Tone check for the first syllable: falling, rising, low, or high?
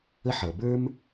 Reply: high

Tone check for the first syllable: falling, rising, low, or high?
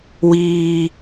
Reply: low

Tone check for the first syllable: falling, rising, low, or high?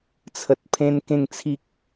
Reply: low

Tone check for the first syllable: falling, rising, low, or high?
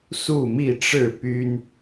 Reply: falling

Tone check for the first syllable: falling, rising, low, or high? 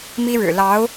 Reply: high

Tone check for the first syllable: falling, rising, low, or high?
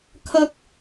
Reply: high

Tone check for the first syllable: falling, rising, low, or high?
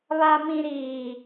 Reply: low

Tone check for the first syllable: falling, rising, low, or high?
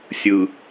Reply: low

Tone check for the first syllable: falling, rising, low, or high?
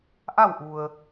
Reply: falling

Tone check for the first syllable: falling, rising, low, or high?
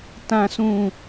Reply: high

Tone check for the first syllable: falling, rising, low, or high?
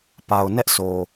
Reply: low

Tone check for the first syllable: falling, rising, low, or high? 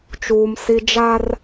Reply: high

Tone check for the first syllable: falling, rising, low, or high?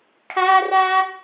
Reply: high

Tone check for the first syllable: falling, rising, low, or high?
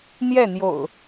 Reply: falling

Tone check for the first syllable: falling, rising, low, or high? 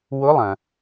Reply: rising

